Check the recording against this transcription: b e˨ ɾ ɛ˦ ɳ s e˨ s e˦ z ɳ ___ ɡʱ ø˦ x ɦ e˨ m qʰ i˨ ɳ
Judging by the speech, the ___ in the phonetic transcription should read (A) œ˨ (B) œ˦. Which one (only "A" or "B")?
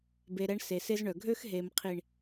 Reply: A